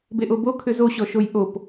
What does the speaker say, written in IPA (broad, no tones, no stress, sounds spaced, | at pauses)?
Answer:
b e ʔ o b o kʰ ʏ z o ɕ ɔ ʃ o j ʔ o p